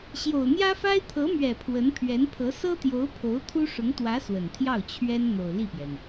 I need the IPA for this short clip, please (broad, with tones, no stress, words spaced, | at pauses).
ɕjo˨˩ʊ̯n̪jä˥fa˥ɪ̯ t̪ʰɤ˧˥mɥɛ˨˩ pʰwə˧˥npʰɥɛ˧˥npʰɤ˧˥ sɤ˥t̪jo˧˥ʊ̯ pʰo˧˥ʊ̯t̪ʰu˥ ʂʊ˧˥ŋt̪wä˧˥ swə˨˩nt̪ʰjɑ˥˩ʊ̯ t͡ɕʰɥɛ˥n n̪o˨˩ʊ̯li˥˩pjɛ˩n